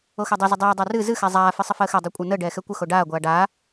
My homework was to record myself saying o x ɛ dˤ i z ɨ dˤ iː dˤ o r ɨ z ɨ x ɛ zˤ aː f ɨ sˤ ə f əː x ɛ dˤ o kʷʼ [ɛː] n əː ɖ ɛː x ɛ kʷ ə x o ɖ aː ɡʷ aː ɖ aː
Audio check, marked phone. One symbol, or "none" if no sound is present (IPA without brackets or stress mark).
əː